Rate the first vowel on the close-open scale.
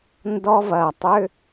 mid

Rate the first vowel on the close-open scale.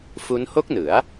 close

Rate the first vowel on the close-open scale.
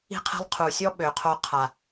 close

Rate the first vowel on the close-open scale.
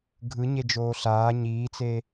close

